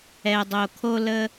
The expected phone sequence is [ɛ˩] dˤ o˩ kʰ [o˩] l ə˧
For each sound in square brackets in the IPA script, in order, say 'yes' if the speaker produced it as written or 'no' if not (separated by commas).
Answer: yes, no